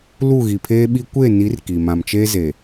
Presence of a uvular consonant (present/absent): absent